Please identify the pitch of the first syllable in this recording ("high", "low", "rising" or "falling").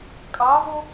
rising